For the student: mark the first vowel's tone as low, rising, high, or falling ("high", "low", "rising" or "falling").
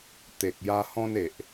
low